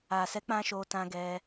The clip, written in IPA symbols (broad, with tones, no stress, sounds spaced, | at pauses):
a˨ s ɛ˨˦ k͡p ã˧ ʃ o˧ t ã˧ ɡ ɛ˧